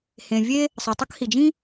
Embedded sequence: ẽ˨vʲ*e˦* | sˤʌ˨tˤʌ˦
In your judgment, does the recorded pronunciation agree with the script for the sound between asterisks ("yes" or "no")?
yes